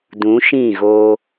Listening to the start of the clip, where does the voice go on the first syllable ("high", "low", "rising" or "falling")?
rising